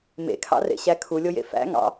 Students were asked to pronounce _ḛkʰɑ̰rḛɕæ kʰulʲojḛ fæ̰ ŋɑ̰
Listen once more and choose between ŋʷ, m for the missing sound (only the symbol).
m